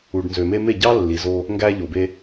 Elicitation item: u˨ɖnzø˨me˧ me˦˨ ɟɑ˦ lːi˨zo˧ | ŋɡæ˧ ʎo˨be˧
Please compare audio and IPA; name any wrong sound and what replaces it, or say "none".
none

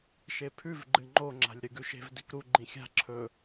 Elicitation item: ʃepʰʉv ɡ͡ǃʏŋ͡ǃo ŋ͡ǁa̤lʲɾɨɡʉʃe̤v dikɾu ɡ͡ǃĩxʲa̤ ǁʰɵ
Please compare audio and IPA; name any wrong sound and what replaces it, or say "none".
ʏ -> ɨ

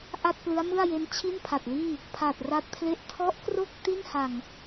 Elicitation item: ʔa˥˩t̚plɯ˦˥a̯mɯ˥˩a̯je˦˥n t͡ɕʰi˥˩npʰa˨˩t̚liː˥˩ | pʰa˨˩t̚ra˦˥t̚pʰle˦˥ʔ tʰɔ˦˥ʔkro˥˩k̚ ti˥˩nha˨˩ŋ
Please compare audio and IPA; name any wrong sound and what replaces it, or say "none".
none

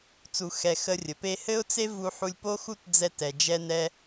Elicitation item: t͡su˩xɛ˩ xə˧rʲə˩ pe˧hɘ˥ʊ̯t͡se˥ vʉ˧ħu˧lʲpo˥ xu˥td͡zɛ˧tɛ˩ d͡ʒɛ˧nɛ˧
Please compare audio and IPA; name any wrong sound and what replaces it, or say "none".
ʉ˧ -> u˧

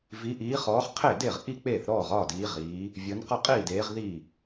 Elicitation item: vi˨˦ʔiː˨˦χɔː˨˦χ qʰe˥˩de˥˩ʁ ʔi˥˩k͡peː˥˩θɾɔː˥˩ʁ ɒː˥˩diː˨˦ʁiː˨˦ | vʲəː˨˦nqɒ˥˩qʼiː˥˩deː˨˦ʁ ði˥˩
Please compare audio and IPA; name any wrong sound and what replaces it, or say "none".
none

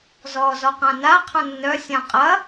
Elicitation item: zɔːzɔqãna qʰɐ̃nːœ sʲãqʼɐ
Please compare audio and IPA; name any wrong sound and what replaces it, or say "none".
none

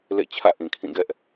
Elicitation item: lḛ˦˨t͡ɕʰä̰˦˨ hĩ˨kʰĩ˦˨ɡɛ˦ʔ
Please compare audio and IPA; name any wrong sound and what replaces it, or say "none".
h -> ʔ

